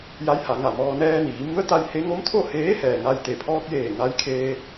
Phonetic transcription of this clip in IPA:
j a˧˥ j h a˩˧ ŋ a˧˩ m ɔː˧ n ɛː˧ n iː˩˧ m u˧˥ ə̯ t̪ a˧ j h e˧˥ ŋ o˧˥ m t̪ʰ o˥˨ h eː˧˥ h ɛː˩ ŋ a˥˨ j t̪ e˧˩ pʰ ɔː˧ k̚ j eː˧˩ ŋ a˧ j kʰ eː˧

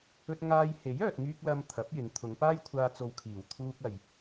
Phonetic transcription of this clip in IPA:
ɵ˥ t̚ ŋ aː˧ j h e˨˥ j œː˨ t̚ ŋ yː˧ k̚ l ɐ˧ m t̪ʰ ɐ˨˥ p̚ j ɪ˨˧ ŋ t̪ʰ ʊ˨˧ ŋ p aː˥ j kʷʰ aː˧ t͡s o˨ w kʰ iː˨˩ w t̪ʰ uː˧ k̚ ɐ˨ j

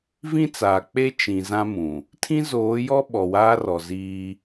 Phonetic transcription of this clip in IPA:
v ĩ˦ t͡s aː˨ k͡p e˦ t͡ʃ ĩ˨ z ã˦ m ũ˨ | tʰ ĩ˦ z oː˨˦ j ɔ˦ ɓ ɔ˨ w aː˦ r ɔ˨ z iː˦

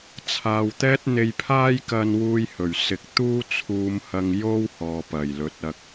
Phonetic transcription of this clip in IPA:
t͡sʰ aː˨ w t̪ ɛː˥ t̚ n̪ e˧ j pʰ aː˥ j k ɐ˧ n w uː˧ j h ɵ˨˩ ɥ s ɪ˨˥ k̚ t̪ uː˥ t͡sʰ uː˧ m h ɐ˧ ŋ j o˥ w h ɔː˨ p ɐ˨˩ j l ɵ˨˥ t̚ ɐ˧ k̚

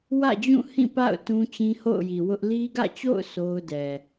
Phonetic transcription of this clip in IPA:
w ä̰˦˨ d͡ʑ ũ˦˨ h ĩ˦˨ p a̰˦˨ ʊ̯ t ũ˦ t͡ɕ ĩ˦ h o̰˦˨ ʊ̯ j i˨ w ʊ˦ ʔ l i˦ ɡ ä̰˦˨ t͡ɕ o̰˦˨ ʊ̯ sʰ o˦ ʊ̯ d ɛ˨

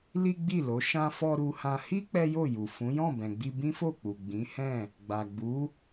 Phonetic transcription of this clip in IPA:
l i˦ ɡ͡b i˦˨ l o˨˦ ʃ ã˧ f ɔ˧ ɾ u˧ h ã˧ h i˦ k͡p ɛ˦ j o˦˨ j u˨ f ũ˨˦ j ɔ̃˦˨ b ɛ̃˨ ɡ͡b i˧ b ĩ˦ f o˦˨ k͡p u˨ ɡ͡b ĩ˨˦ h ɛ̃˦˨ | ɡ͡b a˨ ɡ͡b u˨˦

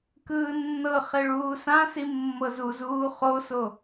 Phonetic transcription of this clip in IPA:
k ɯː nː ɤ χ e ɭ uː s ã s i mː ɤ z u z uː χ o s o

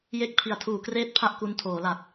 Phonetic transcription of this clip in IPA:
j e˦˥ k̚ pʰ i˨˩ a̯ tʰ uː˨˩ k r eː˥˩ t̚ pʰ a˥˩ ʔ k u˧ n tʰ oː˩˦ l a˨˩ t̚

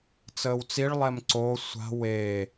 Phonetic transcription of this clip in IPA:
t͡s əː w t͡s i ɭ lˠ ɛ m ǀ o sʷ a̤ w e

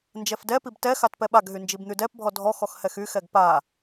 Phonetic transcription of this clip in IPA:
n d͡ʒ ɛ f d ɛ p i b t ɛ x a t p ɛ ɓ a ɡ ɦ y n d͡ʒ i b n̪ y d ɛ p bʱ ɔ dʱ ɔ x ɔ x h ɛ x y x ɛ ɡ p a

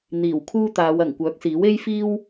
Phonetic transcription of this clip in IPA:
n̪ iː˨˩ w kʰ uː˥ t̪ aː˨˧ w ɐ˨˩ ŋ kʷ œː˨˥ k̚ s iː˨˥ w e˥ j f iː˥ w

